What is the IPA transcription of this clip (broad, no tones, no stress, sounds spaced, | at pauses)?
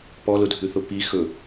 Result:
p ɔ l ʊ dʱ ʉ θ ʊ p i x ɵ